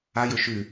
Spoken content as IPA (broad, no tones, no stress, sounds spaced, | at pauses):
a j ɵ ʃ ʉ